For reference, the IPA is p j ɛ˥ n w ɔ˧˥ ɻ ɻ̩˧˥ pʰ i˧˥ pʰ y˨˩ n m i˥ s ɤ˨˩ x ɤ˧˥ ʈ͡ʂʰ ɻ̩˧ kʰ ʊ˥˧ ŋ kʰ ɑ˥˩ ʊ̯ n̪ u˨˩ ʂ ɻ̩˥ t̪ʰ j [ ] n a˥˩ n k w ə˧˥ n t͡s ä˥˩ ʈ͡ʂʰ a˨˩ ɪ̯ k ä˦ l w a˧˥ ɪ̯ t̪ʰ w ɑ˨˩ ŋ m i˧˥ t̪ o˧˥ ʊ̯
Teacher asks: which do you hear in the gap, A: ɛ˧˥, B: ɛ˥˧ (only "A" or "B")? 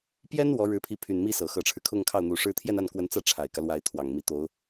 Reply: B